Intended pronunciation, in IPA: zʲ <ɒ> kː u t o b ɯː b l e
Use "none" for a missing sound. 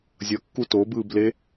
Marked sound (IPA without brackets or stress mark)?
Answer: ʌ